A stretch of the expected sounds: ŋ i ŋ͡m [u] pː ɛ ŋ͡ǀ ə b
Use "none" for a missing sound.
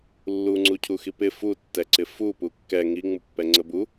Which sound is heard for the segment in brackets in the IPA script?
u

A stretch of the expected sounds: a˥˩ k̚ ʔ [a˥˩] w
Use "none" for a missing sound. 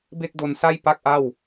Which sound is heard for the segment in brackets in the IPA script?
a˥˩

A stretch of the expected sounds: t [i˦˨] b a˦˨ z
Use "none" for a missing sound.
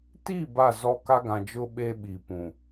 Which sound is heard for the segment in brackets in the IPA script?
i˦˨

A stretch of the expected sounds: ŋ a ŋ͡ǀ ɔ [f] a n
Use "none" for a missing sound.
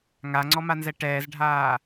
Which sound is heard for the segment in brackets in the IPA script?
m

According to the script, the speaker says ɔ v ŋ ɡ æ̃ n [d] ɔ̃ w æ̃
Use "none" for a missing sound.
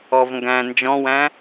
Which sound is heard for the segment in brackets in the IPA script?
d͡ʒ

